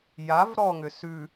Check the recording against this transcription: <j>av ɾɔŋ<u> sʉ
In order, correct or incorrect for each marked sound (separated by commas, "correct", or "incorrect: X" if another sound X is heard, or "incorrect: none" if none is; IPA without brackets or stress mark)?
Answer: correct, incorrect: ʏ